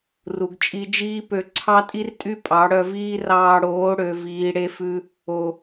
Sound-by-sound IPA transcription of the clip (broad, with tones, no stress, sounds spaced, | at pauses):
r u˨ ɡ t͡ʃʼ i˧ d͡ʒ iː˦ p ø˧ ǀʰ ɑ˦ tʼ i˦ r tʼ y˦ pʼ ɑ˨˦ ɽ œ˧ v iː˦ r ɑː˧ ɽ oː˨˦ ɽ ø˨ v iː˨ ɽ e˧ f ʉ˧ | o˨